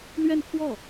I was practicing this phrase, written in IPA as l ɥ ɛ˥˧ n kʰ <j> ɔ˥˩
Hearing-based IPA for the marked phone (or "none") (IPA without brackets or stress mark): w